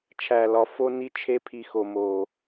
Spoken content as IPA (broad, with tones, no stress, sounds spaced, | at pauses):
t͡ʃʰ æ˨ l ɒ˨˦ f o˦ n i˦ t͡ʃʰ e˦ pʰ i˧ x o˧ m o˧